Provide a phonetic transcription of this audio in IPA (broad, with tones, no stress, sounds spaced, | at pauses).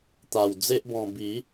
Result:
t̪ a˨˩ w d͡z e˦ ʔ b ɔ̃˧ b i˨˦